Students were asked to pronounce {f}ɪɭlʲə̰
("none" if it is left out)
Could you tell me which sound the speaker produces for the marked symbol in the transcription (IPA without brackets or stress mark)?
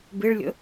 b